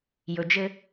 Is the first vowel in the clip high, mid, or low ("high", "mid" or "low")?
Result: mid